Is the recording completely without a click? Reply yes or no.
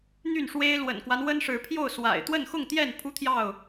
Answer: yes